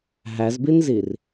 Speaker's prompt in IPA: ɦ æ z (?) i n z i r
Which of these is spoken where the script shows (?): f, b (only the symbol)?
b